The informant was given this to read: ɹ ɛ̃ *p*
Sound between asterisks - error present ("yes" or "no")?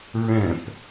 no